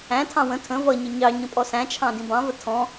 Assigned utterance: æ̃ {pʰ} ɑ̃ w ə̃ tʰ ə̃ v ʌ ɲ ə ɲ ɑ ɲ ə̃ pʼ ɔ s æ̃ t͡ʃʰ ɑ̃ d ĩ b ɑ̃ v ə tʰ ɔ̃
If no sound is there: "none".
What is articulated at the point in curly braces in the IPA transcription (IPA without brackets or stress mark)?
tʰ